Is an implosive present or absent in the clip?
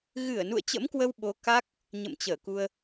present